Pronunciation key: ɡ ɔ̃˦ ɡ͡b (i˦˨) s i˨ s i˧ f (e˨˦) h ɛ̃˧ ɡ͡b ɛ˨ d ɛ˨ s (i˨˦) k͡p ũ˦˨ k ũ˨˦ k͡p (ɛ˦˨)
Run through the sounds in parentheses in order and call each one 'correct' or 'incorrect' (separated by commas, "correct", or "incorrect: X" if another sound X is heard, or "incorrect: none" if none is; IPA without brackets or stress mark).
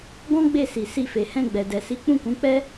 incorrect: e˦˨, incorrect: e˨, correct, incorrect: ɛ˦